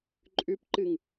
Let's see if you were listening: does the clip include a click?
yes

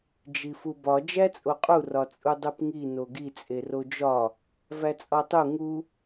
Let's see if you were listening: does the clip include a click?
no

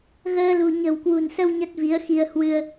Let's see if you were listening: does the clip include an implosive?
no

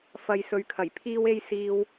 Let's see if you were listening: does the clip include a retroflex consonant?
no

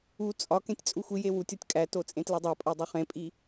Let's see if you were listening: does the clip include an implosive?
no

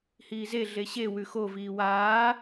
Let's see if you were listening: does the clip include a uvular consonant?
no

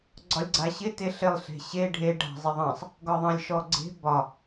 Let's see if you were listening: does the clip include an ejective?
no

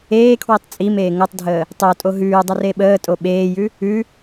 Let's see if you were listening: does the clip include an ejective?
yes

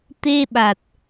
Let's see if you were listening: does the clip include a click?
no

